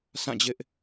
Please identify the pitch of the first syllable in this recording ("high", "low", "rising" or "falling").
falling